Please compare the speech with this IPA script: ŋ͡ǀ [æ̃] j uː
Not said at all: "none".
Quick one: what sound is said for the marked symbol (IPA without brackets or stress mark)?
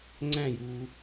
æ̃